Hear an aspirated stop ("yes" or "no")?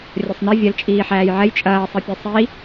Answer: no